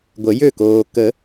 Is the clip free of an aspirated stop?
yes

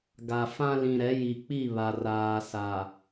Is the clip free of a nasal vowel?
no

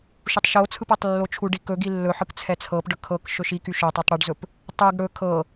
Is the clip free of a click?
yes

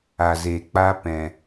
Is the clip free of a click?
yes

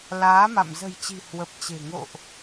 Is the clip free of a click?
yes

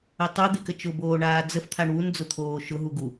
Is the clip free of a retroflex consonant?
no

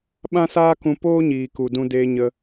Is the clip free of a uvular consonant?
yes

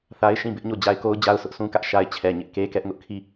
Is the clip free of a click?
yes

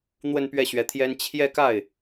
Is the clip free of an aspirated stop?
no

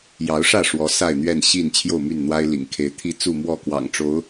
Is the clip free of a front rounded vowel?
no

